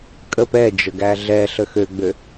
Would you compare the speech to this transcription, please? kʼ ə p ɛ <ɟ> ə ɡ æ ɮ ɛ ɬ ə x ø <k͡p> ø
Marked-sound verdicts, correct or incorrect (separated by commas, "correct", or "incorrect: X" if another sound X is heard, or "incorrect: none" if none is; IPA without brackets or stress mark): incorrect: d͡ʒ, incorrect: ɡ͡b